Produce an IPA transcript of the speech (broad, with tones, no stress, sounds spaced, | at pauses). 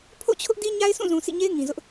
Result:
pʰ o̰˦˨ t͡ɕʰ ʊ˦ ʔ d i˦ ɲ a˦ ɪ̯ s ũ˦˨ z ũ˨ sʰ ḭ˦˨ ɲ e˦ ɪ̯ ŋ ĩ˨ z ʊ˦ ʔ